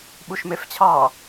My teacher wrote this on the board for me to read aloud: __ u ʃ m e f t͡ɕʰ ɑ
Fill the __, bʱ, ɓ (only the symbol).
ɓ